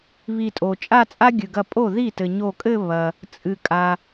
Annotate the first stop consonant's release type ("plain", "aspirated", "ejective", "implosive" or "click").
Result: ejective